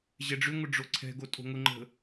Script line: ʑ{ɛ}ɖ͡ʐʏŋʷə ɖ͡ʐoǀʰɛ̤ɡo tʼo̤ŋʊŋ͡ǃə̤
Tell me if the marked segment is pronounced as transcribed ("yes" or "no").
yes